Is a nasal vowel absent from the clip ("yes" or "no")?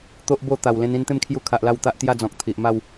no